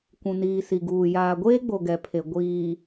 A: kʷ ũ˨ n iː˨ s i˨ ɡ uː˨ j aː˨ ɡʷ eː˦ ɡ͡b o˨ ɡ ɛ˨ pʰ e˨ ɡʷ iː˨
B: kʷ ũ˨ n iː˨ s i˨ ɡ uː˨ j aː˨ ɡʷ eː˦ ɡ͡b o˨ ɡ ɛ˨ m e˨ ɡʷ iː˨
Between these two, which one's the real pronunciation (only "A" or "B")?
A